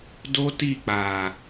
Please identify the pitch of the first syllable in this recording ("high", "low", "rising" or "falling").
high